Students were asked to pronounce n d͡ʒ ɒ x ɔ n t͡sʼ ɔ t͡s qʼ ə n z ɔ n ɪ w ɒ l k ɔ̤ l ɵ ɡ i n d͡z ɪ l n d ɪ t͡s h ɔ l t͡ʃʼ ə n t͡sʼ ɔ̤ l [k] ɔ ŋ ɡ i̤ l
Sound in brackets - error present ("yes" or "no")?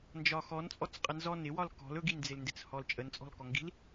no